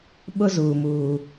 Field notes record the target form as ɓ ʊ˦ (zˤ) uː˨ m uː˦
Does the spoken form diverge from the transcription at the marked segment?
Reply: yes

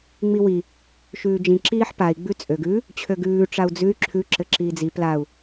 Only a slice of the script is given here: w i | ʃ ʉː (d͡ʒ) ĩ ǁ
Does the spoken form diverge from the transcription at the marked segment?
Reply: no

